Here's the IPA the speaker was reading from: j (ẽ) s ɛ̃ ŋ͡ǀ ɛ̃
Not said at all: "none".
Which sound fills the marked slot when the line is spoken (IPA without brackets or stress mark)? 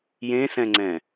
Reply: ẽ